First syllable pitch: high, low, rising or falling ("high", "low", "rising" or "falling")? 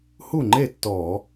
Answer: falling